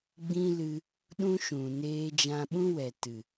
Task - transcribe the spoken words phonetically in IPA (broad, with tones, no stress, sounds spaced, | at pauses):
ɡ͡b ĩ˦ l ɨ˧ | ɗ ũ˦ ʃ ũ˨ n eː˧ d͡ʒ ã˧ ɓ ũ˦ w ɛ˨ t ɨ˨